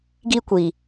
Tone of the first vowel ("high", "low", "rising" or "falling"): high